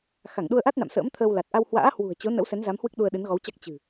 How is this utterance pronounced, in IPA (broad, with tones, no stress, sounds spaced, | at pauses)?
x a˧˩ ŋ ɗ u˧ ə̯ ʔ a˦˥ t̚ n a̰˧˨ m s ə̰ː˧˥ m t̪ʰ əː˧ w l a˨˩ t̚ ʔ a˧ w h w a̰ː˧˥ h w ṳ˨˩ ə̯ t͡ɕ o˨˦ n ə̰˧˥ w s ɛ˨˦ n z a˨˦ m h w ɨ˦˥ k̚ ɗ u˧ ə̯ ɗ ɨ˨˦ n ɣ ɔ˨˦ w t͡ɕ a˦˥ k̚ t͡ɕ ɨ̤˨˩